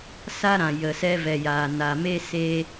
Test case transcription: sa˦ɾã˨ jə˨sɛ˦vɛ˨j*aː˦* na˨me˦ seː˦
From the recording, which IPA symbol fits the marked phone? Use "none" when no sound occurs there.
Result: aː˨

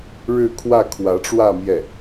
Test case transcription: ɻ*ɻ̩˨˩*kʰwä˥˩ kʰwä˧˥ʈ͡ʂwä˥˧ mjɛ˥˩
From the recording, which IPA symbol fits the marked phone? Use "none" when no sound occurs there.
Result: ɻ̩˥˧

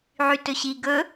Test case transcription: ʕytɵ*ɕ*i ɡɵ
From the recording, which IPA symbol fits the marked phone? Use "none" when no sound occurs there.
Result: ɕ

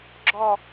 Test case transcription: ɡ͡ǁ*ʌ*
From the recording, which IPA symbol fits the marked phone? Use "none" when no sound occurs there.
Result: ɔ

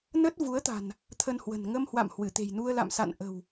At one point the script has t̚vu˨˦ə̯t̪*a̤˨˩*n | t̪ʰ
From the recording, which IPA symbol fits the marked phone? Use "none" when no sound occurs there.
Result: a̤˨˩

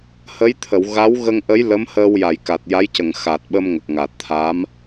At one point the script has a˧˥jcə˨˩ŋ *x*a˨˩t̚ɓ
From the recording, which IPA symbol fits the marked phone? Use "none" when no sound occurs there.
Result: x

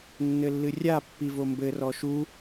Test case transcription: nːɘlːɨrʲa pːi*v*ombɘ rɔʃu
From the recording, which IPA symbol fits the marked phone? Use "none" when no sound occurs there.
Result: v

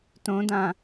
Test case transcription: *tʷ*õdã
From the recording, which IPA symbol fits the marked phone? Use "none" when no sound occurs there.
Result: t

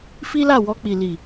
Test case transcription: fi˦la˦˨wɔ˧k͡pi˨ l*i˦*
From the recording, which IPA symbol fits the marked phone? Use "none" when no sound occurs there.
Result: i˨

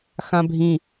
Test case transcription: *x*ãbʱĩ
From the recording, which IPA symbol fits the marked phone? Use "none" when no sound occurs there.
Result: x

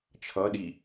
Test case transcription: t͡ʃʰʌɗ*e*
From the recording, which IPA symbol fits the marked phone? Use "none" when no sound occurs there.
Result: i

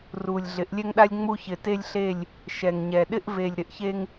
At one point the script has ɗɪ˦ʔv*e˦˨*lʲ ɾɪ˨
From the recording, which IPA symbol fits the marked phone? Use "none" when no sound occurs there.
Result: e˨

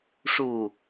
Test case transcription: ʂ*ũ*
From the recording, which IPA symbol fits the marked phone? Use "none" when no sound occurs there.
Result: u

